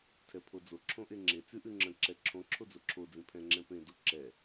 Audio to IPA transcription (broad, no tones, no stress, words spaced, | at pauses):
tʰɛpʰod͡zo ǁʰõʔeŋ͡ǁe t͡sʉʔʉŋ͡ǁə̃ ǁɛǁʰõ ǁʰod͡zoǁʰo d͡zĩpʰɛ̃ ŋ͡ǁɛ̃pẽ doǁɛ